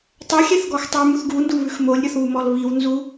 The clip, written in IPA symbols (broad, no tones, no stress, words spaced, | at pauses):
tˤɛxʲɛθɡɔx tˤʉmuθ ɡunduβʉx molʲɾʲɔθβumɔl βiwnzu